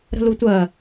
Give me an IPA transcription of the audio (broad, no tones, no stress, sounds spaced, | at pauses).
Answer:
ɾ ə̤ l u tʷ ɜ